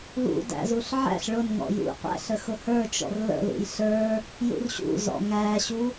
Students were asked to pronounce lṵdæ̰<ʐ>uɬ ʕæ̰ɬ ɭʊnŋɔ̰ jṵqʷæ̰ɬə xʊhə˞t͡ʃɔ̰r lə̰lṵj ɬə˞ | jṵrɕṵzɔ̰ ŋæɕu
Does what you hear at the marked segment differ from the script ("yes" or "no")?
yes